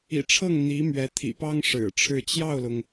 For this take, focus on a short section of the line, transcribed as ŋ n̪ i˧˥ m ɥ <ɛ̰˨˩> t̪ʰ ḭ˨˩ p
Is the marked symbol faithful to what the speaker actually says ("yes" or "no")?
no